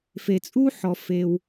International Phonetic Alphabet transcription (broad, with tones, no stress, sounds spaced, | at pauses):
f e˩ t͡sʼ u˥ ħ ɔ˩ f e˩ w